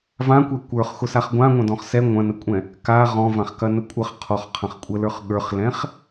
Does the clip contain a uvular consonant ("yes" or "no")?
yes